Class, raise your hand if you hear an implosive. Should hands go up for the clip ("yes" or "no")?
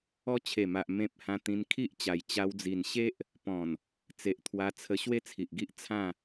no